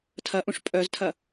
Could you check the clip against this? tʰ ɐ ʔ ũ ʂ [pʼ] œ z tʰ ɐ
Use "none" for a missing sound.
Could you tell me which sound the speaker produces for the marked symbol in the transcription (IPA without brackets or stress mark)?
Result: pʼ